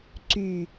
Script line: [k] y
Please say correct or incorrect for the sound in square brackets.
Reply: incorrect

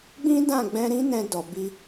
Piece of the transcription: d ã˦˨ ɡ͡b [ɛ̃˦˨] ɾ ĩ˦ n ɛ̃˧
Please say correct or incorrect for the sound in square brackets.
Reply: incorrect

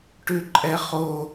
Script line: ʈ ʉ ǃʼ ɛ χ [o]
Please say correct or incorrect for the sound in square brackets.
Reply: correct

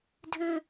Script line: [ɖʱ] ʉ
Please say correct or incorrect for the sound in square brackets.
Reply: incorrect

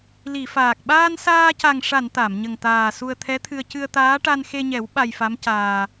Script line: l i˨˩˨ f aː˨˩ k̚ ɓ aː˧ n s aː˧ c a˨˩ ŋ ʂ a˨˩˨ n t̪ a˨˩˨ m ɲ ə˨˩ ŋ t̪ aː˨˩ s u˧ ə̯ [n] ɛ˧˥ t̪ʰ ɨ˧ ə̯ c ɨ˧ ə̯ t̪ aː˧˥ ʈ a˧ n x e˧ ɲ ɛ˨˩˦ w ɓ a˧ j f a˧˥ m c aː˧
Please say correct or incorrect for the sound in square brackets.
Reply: incorrect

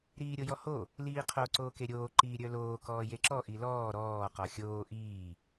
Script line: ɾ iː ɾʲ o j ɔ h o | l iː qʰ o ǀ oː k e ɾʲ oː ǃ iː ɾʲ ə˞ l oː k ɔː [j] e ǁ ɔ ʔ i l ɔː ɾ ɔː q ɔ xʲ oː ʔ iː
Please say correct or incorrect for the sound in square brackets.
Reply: correct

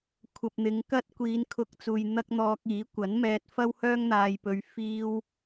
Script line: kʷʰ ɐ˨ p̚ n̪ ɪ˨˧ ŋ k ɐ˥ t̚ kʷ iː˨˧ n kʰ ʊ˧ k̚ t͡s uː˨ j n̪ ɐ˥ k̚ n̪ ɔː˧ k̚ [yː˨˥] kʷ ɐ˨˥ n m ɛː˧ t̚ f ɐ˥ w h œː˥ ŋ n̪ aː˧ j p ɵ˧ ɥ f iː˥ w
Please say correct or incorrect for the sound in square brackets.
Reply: incorrect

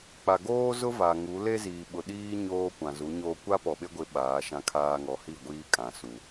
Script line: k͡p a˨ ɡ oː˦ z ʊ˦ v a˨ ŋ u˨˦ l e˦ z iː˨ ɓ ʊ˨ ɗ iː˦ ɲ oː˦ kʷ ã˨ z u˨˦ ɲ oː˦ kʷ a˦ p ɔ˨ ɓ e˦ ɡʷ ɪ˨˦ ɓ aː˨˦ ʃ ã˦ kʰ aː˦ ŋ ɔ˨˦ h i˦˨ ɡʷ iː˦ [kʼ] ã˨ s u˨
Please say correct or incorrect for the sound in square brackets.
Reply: correct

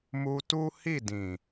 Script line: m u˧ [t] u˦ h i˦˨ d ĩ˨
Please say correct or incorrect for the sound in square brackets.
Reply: correct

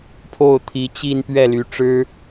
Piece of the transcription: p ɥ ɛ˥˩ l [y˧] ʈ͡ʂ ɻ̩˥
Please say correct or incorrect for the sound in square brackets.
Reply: incorrect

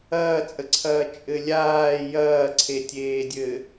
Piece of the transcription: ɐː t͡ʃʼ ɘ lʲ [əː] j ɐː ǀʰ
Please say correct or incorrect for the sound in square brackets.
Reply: incorrect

